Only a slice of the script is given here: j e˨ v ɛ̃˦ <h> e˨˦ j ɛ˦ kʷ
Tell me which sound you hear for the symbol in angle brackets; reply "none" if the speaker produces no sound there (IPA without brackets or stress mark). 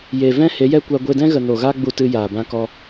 h